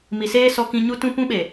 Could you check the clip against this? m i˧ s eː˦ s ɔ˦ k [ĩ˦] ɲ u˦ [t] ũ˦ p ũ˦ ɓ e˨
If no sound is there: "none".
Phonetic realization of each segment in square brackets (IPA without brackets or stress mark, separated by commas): ĩ˦, t